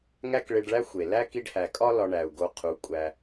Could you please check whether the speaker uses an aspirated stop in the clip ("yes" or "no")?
yes